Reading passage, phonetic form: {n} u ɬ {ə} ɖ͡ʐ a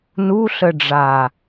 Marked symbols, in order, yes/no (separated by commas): yes, yes